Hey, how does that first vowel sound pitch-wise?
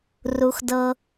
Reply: high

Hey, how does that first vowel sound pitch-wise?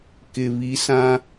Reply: low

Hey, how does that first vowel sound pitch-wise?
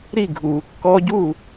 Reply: falling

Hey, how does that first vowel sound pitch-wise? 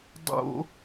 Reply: high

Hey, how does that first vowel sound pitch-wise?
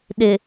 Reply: low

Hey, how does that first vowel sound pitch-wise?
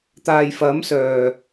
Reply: low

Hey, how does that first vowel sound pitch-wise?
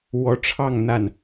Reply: rising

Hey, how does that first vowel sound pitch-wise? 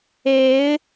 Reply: rising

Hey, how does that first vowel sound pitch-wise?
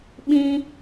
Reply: high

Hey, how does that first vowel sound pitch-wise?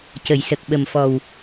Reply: low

